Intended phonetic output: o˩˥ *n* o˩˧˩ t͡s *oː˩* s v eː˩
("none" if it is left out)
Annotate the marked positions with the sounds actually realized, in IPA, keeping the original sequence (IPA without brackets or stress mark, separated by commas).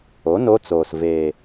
n, oː˩